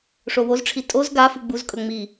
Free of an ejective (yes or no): no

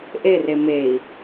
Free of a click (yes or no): yes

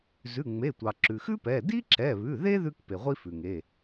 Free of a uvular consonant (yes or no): no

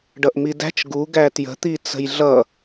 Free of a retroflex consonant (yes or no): no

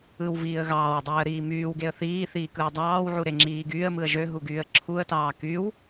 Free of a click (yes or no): no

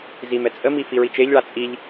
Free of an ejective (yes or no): no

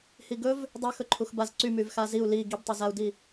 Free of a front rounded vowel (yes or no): no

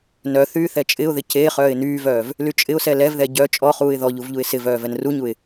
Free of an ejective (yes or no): no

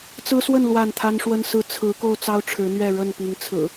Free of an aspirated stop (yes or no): no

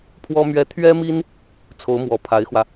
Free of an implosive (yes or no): yes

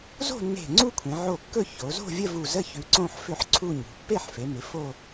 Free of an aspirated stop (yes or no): no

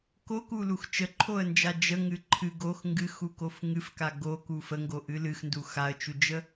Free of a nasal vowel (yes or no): yes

